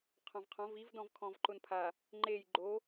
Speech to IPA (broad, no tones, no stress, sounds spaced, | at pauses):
qʰ ɔ̃ v qʰ ɔ̃ v i v d ɔ̃ v kʰ ɔ̃ v ǃ ʊ n pʰ a | ŋ͡ǃ e j ɡ͡ǃ o